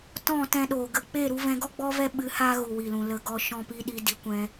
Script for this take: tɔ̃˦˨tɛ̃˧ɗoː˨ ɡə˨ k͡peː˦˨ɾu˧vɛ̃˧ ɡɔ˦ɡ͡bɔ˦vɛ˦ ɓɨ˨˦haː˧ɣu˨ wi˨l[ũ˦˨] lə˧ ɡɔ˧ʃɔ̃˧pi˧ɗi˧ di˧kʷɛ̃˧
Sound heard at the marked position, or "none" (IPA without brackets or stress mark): ũ˨